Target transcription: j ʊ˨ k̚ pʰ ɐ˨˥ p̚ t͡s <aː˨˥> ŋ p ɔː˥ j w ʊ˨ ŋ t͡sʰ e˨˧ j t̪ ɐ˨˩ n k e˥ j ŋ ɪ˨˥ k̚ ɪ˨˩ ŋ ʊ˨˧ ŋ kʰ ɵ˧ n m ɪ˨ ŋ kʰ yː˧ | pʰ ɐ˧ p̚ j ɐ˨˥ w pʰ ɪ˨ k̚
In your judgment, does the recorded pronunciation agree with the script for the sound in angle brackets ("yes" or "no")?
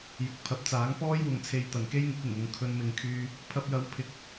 yes